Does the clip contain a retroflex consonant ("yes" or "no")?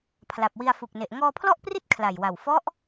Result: no